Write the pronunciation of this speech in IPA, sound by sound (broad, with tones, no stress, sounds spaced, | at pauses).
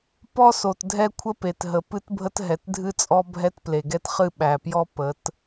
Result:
p ɔ˦ s o˨ t dʱ ɛ˦ kʷʰ ə˦ p e˨ t ɦ ə˨ p ɨ˦ t bʱ ə˦ t ɦ ɛ˨ t dʱ ɨ˦ t͡sʼ ɔ˦ bʱ ɛ˦ t p l e˨ ɡ ɛ˦ t χ ɨ˦˨ ɓ æ˨ p j ɔ˦ p ə˨˦ t